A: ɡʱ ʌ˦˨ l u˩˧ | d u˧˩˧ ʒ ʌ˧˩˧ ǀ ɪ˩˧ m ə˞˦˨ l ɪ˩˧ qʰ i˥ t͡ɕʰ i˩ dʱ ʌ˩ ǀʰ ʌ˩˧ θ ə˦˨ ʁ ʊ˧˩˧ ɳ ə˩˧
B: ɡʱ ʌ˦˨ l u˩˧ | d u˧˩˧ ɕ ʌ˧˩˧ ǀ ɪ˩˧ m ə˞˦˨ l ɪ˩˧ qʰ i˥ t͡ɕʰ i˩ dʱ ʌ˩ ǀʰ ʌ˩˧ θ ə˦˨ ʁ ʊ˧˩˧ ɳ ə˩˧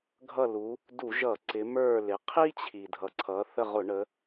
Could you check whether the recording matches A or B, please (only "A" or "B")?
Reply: A